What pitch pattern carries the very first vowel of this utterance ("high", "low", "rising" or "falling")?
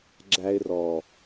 high